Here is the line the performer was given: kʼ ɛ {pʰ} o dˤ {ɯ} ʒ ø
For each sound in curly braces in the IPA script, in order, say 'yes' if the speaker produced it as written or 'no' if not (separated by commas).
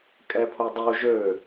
yes, no